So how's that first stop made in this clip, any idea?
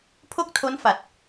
aspirated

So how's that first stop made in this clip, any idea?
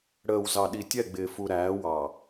implosive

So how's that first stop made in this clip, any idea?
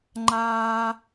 click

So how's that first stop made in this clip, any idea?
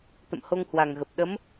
plain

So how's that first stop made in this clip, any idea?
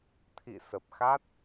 aspirated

